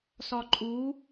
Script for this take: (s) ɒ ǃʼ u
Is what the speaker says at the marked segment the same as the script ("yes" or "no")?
yes